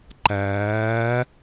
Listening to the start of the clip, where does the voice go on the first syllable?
rising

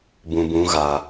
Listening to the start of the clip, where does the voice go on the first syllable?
low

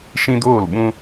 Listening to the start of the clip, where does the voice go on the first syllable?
high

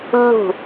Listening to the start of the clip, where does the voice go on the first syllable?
falling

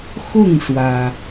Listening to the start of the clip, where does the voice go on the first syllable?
falling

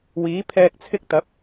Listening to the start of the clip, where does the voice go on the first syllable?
rising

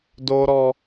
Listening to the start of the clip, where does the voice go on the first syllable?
high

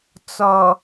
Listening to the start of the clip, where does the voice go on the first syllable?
low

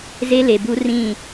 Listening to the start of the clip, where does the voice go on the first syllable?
high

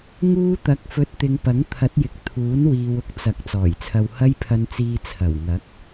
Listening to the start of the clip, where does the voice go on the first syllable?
high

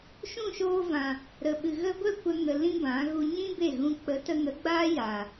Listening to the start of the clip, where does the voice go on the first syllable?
falling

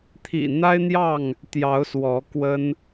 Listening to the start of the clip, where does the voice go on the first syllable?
low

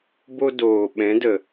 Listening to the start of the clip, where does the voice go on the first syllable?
high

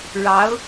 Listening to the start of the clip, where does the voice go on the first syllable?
rising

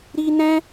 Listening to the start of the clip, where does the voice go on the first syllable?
high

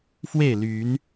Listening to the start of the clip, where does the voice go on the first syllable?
falling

